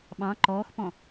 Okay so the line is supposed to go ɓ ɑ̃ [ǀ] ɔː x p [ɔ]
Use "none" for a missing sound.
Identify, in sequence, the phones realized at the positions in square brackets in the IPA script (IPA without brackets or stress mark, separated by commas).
ǃ, ɔ̃